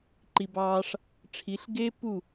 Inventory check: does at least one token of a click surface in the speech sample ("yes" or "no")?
yes